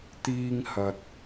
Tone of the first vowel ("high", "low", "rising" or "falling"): high